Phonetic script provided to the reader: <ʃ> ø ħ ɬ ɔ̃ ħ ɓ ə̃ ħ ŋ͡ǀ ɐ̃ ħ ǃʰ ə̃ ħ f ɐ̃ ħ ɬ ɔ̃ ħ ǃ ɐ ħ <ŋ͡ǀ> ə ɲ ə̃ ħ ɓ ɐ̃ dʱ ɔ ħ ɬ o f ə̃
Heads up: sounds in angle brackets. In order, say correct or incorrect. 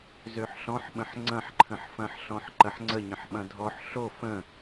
incorrect, correct

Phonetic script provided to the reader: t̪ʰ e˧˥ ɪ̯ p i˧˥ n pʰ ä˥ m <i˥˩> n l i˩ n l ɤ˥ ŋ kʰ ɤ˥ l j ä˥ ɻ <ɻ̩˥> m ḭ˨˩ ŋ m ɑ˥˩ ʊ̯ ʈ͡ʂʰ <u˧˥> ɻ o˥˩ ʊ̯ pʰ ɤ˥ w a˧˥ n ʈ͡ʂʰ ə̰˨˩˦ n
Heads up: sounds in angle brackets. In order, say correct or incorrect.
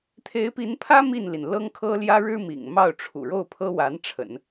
correct, correct, incorrect

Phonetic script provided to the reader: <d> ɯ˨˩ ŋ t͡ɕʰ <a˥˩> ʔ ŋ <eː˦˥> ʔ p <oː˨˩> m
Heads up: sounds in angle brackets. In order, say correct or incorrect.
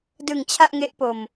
correct, correct, incorrect, incorrect

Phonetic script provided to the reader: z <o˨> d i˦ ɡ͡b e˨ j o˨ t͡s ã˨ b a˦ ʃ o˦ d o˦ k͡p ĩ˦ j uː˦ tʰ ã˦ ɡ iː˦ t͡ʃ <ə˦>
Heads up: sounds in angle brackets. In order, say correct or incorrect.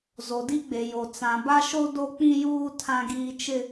correct, incorrect

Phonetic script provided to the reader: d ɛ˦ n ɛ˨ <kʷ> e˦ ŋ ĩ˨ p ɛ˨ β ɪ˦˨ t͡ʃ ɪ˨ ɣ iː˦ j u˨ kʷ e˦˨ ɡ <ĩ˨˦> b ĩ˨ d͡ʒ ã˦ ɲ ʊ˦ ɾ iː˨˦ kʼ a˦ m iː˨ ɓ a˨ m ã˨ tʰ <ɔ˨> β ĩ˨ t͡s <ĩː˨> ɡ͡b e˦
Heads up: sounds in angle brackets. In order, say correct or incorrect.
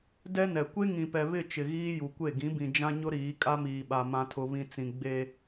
correct, correct, incorrect, incorrect

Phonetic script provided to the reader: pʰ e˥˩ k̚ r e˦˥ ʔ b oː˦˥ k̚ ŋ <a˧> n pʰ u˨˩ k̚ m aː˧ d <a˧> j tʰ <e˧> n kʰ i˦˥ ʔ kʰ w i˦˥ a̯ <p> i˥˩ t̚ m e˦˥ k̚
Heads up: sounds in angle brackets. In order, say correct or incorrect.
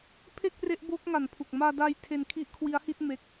incorrect, incorrect, correct, incorrect

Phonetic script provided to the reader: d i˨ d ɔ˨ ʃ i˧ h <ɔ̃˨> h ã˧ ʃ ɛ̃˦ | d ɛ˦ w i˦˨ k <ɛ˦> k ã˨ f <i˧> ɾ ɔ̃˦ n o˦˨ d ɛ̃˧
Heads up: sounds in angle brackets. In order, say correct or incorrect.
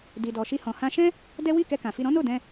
correct, incorrect, correct

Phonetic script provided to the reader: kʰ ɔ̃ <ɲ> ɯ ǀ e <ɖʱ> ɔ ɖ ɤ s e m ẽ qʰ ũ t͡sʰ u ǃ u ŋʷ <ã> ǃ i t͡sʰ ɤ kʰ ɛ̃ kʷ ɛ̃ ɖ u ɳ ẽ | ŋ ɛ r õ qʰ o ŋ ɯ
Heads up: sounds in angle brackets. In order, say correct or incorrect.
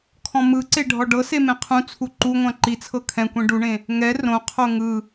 incorrect, correct, correct

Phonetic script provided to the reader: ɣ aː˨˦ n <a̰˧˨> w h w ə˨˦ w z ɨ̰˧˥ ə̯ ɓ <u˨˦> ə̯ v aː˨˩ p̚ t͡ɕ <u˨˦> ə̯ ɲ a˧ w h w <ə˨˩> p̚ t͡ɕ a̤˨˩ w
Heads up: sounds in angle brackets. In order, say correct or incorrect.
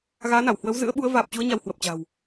incorrect, correct, correct, correct

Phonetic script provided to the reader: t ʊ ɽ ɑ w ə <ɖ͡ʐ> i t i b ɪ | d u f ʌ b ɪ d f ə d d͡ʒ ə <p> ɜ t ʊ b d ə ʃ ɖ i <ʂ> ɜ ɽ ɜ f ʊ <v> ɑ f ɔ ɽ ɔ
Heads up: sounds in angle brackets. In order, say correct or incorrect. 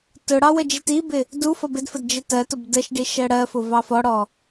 incorrect, incorrect, incorrect, correct

